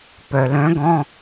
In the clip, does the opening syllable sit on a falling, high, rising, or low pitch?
low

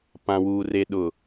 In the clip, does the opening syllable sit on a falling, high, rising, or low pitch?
low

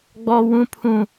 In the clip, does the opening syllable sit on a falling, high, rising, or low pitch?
high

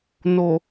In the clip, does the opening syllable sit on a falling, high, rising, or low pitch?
low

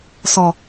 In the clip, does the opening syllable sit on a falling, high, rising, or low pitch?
low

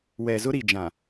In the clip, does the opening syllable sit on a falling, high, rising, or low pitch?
low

